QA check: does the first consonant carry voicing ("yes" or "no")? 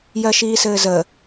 yes